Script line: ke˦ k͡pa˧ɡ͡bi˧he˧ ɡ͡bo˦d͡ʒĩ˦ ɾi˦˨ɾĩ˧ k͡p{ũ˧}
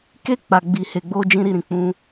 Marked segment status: correct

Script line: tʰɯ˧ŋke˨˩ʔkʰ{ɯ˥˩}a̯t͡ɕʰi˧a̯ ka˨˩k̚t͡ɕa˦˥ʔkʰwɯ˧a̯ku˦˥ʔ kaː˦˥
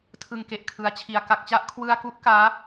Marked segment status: incorrect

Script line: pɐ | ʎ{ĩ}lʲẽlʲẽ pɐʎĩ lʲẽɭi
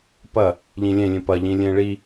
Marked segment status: correct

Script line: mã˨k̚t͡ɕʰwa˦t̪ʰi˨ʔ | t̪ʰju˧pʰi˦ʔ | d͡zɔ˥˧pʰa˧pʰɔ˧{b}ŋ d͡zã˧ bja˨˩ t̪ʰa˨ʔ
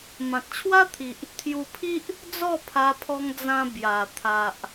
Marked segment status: incorrect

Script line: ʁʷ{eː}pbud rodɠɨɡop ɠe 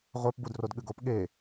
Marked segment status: incorrect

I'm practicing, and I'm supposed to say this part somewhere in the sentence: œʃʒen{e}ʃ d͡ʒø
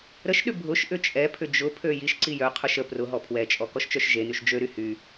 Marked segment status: incorrect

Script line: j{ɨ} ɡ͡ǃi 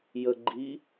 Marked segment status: incorrect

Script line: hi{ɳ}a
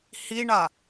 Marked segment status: correct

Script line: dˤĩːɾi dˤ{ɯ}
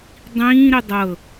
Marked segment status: incorrect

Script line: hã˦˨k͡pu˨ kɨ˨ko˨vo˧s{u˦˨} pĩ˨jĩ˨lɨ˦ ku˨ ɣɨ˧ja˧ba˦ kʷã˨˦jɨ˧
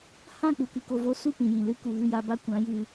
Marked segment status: correct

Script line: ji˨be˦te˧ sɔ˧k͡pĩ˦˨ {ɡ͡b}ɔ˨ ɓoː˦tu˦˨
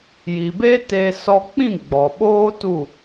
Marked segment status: correct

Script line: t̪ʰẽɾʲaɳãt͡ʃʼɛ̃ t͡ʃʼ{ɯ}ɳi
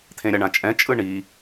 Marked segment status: correct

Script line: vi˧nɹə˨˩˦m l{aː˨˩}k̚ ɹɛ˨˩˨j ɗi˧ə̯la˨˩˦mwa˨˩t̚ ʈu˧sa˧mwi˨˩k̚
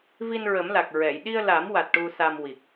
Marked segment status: incorrect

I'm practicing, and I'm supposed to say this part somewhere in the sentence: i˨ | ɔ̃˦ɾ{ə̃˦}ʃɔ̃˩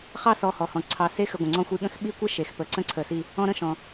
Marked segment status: correct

